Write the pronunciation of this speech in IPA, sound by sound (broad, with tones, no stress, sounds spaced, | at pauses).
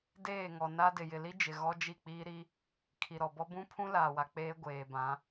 d eː˦˨ ŋ ɔ˨ n a˦ d ɪ˨ j ɪ˨ l i˦ d͡ʒ ɪ˨ ɣ ɔ˦ d͡ʒ i˦˨ k͡p iː˦ ɾ i˦ | kʰ i˨ ɾ ɔ˨ b ɔ˦ b ũ˦ pʰ ũ˦ l aː˨ w a˨ k͡p eː˦ ɡʷ eː˨ b ã˨˦